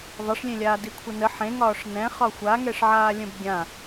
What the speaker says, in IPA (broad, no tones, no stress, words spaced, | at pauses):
ðˤɛʂlʲẽlʲaː dikʷʰənə ħẽŋɒːʂ nɛ̃ χɒxʷaŋɛʂʕaː lʲə̃bɡʲã